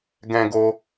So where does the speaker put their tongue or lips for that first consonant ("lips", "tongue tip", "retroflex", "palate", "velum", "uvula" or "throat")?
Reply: velum